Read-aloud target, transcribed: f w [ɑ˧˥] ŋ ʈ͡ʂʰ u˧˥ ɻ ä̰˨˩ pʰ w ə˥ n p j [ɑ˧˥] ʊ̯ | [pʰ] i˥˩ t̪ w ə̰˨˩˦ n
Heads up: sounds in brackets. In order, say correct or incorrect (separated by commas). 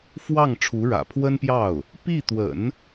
incorrect, incorrect, incorrect